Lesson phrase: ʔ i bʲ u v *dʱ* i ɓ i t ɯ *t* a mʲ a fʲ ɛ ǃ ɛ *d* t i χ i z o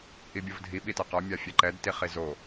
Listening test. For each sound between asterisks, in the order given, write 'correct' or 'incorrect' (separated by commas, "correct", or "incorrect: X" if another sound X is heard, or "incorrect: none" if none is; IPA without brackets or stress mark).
correct, incorrect: q, correct